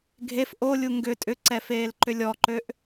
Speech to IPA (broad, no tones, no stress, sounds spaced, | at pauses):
ɡʱ e f ʔ o lʲ u ŋ ɡ ʏ tʼ ʏ ǀ ɛ f eː l ǃ ʏ lʲ ɔ ǃ ø ʔ